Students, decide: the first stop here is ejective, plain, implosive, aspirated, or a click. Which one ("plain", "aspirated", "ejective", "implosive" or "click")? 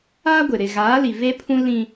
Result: plain